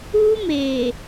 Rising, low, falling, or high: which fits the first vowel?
high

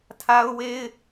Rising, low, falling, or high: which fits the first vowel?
high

